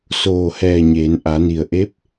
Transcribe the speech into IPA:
s oː˧˩ h ɛː˧˩ ɲ eː˩˧ n ʔ a˩˧ n i˩ ə̯ ʔ e˧˥ p̚

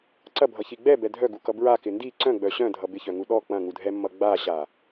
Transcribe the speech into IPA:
ǀ ɐ bʱ ʌ ç i ɡ͡b ɛ b ɛ dʱ œ ɡ u k ʌ b ɹ a k ɪ n d i ǀ œ̃ ɡ͡b œ ɕ œ̃ dʱ ʌ b ɪ ç œ ŋ u ɗ ɔ k͡p ɐ̃ ŋ u dʱ ɛ mː ʌ ɡ͡b a ɕ a

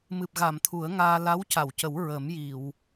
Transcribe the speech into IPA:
m ɨ˨˩ p̚ ɣ a˨˩˨ m t̪ʰ u˨˩˦ ə̯ ŋ aː˧ l a˧˥ w c a˨˩˨ w c ə˨˩˦ w ɹ ə˨˩˦ m j i˨˩˨ w

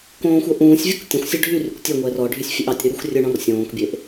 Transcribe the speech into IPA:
k õː xʷ œ ʔ ũː sʲ vʲ u k tʲ ɔ̃ xʷ sʲ ɵ ɖʱ y r y kʷ tʲ œ ŋʷ ɛː r ɔ ɖʱ y sʲ fʲ e ʔ ɑ tʲ ɾ y ɾ y xʷ rʲ ɵ ɳ ɔ̃ r sʲ õː k bʲ e ʔ

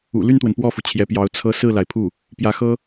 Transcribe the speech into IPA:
ṵ˨˩ l y˥˩ n t̪ w ə˩ n p w ɔ˥˩ f u˩ t͡ɕʰ j ɛ˧˥ p j ɑ˧˥ ʊ̯ t͡sʰ ɤ˥ s ɹ̩˥˩ l a˩ ɪ̯ pʰ u˥˩ | p j ä˧˥ x ɤ˥

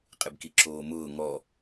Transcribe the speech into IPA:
qʼ ɪ b k i ǁ oː m ʊː ŋ ɔ

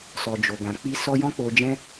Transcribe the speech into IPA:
s ɔ˨ d͡ʒ o˨ ɡ ã˨ k͡p i˧ s ɔ˧ j ɔ̃˦ k͡p o˧ d͡ʒ ɛ̃˦

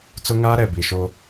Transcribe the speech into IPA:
t͡s ʊ˦ ŋ aː˦ ɾ ɛ˨ b i˨ ʃ o˦

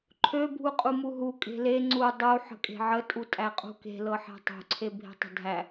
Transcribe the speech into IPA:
ǃʰ ø bʱ u qʼ u m u ɦ u kʼ e̤ l e ŋ͡ǀ u dˤ u ħ ə̤ kʼ e̤ ʕ ə tʼ u tʼ æ qʼ ṳ k e̤ l ɤ ħ æ̤ tˤ ṳ ǀʰ e bʱ e̤ tˤ ə̤ dʱ æ

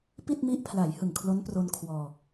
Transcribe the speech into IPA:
p i˥˩ t̚ m i˦˥ ʔ pʰ l a˩˦ j h ɯ˨˩ ŋ kʰ l o˦˥ n p r o˧ n kʰ w ɔː˧

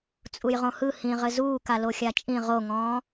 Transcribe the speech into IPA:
t͡sʼ u j ʁ õ h ɯ h ĩ ʁ ɘ z uː k a l o xʲ a t͡ʃʼ ĩ ʁ o ŋ ɔ̃ː

